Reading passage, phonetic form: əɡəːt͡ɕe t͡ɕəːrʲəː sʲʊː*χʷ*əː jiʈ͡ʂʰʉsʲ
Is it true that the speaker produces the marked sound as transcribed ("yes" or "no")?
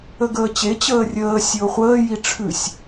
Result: yes